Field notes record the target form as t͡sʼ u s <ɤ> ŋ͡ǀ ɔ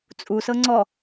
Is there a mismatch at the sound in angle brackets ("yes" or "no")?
no